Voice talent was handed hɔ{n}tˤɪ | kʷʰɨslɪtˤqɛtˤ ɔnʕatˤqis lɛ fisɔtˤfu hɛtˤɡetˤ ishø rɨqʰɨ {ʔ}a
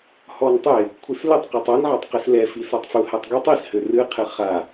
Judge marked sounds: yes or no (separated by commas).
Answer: yes, no